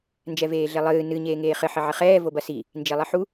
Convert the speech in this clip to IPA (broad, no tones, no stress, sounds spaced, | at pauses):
n d͡ʒ ɛ v eː ɮ e lˠ ɨː n ɨ ɲ eː ŋ eː χ ɘ ħ ɘ ʕ ɘ χ ɛː v o b ɐ s i | n d͡ʒ e lˠ ɘ ħ u